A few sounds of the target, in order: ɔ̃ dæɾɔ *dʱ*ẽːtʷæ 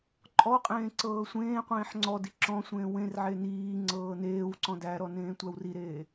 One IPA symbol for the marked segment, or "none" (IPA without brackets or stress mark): n